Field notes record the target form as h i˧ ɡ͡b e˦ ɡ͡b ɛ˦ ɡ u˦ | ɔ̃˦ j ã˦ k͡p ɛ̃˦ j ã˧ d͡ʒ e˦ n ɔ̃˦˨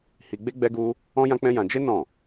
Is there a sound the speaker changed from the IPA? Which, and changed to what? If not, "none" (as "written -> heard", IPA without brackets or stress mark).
none